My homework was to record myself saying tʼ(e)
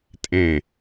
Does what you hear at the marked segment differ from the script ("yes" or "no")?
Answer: yes